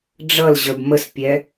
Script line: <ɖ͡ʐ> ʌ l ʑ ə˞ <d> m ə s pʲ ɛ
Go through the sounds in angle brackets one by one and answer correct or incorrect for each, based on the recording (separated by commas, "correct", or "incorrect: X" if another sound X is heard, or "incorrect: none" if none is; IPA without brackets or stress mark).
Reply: correct, incorrect: b